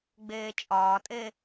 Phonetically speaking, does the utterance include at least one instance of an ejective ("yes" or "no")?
yes